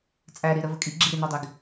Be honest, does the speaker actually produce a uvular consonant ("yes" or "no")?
no